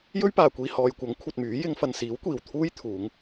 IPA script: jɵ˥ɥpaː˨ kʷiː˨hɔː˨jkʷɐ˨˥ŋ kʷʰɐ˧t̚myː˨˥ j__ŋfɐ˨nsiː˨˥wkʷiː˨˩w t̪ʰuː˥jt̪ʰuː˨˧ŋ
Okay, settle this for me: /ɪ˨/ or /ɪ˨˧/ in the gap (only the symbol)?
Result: ɪ˨˧